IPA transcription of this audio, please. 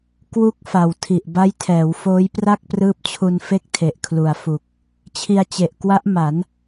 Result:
k w u˥˩ k̚ f a˨˩ w tʰ i˨˩ ʔ b a˦˥ j tʰ ɛː˩˦ w f oː˦˥ j p r a˥˩ k̚ p r ɯː˦˥ p̚ t͡ɕʰ u˧ n f e˥˩ k̚ tʰ e˨˩ ʔ kʰ l u˨˩ a̯ f u˨˩ k̚ | t͡ɕʰ i˧ a̯ t͡ɕ e˨˩ ʔ k w a˦˥ ʔ m a˩˦ n

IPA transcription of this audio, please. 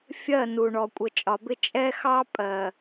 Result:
fʲ ɜ˦˨ n u˨ ɳ ɔ˨ kʷʼ ə˨ t͡ʃʼ ɒ˨ b ɪ˦ t͡ʃʼ ɛ˦ x ɑ˦ pʼ ɜ˨

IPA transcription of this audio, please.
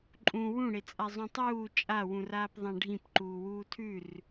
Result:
ǃʼ ũ w ũ ɽ e t͡sʼ a zˤ ũ tˤ uː t͡ʃʼ a w ũ r aː p ðˤ ã ɖʱ ĩ p ǃ uː w uː tʰ ʉ r

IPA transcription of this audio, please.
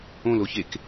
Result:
õ l o ç e k

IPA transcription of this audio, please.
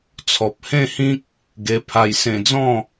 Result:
t͡sʰ ɔ˨ p̚ h ẽ˥˧ h ĩ˦ k̚ | ɡ e˧ pʰ a˧ j s ẽ˧ d͡z ɔ̃˥˧

